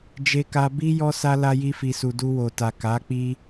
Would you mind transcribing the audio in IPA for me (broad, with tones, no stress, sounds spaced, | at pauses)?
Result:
d͡ʒ e˧ k a˧ b i˦ j ɔ˦ s a˦ l a˧ j i˧ f i˨ s u˨ d u˧ w o˨ t a˨ k a˨˦ k͡p i˦